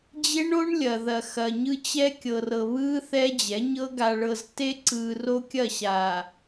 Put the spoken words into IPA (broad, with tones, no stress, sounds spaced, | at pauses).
d͡ʑ e˦ ɳ o˦ ɳ lʲ ɐ˨ ð ɐ˨ x ɐ˨ ɲ ɯ˦ t͡ɕ ɛ˦ kʲ ɤ˨ r ɤ˨ β ɯː˦ θ ɛ˦ d͡ʑ ɛ˨˦ ɲ ɤ˦ ɡ a˨ ɭ ɤ˨ z t e˦ ǀ ɯː˨ r o˦ kʲ ɐ˦˨ ɕ aː˨